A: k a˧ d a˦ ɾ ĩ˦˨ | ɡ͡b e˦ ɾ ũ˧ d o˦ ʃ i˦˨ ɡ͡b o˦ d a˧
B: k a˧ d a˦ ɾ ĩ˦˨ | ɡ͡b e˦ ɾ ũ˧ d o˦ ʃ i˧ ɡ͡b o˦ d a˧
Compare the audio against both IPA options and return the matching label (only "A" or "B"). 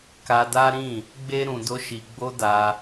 B